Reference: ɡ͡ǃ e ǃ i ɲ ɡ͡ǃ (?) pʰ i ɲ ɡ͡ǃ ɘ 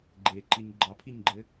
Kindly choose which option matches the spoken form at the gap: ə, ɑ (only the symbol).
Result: ɑ